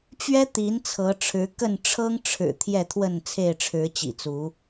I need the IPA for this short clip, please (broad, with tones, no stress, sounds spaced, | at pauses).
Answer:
t͡ɕ ɥ ɛ˦ t̪ i˨˦ n t͡sʰ ɤ˨˦ ʈ͡ʂʰ ɻ̩˨˦ k ə˥˨ n ʈ͡ʂʰ ɤ˦ ŋ ʈ͡ʂʰ ɻ̩˨˩ t̪ʰ j ɛ˥˨ t̪ʰ w ə˥˨ n t͡sʰ e˥˨ ɪ̯ ʈ͡ʂʰ ɻ̩˨˦ t͡ɕ ḭ˨˩ t͡s u˨˦